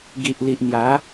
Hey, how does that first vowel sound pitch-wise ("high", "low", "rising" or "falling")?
low